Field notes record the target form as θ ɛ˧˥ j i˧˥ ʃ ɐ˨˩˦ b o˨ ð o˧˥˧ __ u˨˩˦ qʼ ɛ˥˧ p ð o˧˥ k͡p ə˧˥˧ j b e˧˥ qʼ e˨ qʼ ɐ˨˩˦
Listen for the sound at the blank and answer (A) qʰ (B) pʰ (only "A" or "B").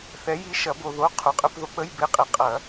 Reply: A